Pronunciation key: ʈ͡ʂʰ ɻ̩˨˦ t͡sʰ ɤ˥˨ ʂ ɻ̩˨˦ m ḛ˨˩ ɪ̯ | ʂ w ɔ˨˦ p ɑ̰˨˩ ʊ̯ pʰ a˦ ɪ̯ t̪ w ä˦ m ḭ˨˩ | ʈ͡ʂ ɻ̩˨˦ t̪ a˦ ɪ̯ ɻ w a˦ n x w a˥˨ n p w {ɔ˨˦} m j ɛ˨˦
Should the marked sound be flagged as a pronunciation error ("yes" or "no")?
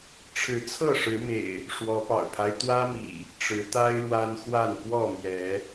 yes